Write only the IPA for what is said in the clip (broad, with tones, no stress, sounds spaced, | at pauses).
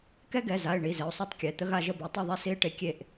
k ɛ˦ ɡ ɛ˩˧˩ z a˩˧˩ e̯ ɳ i˩˧˩ z ɘ˩˧˩ o̯ sˤ ɛ˦˨ tˤ kʲ ɛ˩˧˩ t̪ ə˦ ɣ a˦˨ ʒ ə˦˨ b e˨˥ tˤ ɛ˦˨ ðˤ e˦˨ s i˦˨ e̯ ʈ e˦ kʲ e˦˨ ʔ